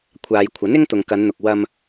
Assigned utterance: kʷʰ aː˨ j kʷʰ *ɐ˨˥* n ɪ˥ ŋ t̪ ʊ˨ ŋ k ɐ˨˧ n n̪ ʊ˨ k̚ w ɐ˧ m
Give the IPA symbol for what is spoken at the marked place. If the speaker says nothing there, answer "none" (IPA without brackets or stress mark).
ɐ˨˥